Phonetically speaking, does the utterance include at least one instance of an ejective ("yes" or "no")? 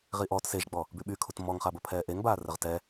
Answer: no